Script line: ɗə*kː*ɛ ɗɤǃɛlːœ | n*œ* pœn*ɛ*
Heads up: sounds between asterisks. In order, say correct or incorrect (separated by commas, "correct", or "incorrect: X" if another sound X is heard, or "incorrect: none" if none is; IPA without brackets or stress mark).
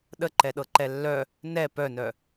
incorrect: ǃ, incorrect: ɛ, incorrect: œ